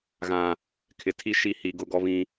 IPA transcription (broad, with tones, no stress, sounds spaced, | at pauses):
ɣ ã˨ | kʰ ɪ˨ tʰ i˦ ʃ i˦˨ h i˨ ɡ ʊ˦ ɡ ɔ˦ β ĩ˦